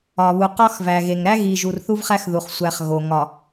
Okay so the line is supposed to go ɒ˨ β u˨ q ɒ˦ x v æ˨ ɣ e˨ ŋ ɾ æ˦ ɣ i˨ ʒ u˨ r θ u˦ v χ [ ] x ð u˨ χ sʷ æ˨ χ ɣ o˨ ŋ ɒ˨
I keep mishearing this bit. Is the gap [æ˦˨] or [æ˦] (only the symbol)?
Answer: æ˦